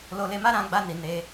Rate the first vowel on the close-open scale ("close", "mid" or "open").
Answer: mid